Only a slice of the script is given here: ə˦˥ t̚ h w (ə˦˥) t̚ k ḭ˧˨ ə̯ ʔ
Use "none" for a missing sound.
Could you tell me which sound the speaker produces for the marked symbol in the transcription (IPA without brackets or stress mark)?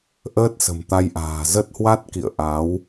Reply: a˦˥